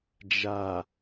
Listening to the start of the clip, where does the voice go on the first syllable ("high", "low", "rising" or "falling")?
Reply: low